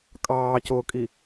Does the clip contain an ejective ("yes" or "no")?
yes